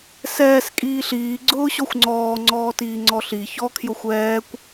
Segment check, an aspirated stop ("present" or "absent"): present